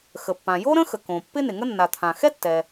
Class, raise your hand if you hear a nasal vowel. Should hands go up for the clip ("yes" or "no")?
yes